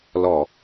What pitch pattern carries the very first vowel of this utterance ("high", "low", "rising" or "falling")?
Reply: low